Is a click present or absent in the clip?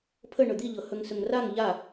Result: absent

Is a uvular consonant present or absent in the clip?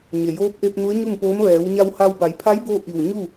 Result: absent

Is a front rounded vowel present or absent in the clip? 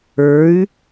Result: present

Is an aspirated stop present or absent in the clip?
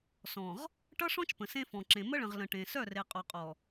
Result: absent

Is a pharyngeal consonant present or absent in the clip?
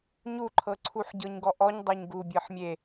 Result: present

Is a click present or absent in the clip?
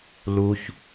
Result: absent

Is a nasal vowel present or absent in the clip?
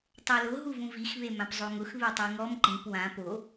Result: present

